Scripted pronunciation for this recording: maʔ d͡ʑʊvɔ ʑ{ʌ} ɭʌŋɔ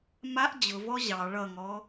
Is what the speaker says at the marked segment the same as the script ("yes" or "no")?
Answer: no